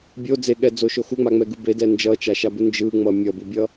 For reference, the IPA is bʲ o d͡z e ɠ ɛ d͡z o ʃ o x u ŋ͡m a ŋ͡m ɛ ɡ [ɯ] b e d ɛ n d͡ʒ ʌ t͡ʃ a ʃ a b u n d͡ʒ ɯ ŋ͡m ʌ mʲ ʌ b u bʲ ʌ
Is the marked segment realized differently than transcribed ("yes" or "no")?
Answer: no